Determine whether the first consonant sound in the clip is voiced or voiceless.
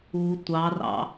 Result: voiceless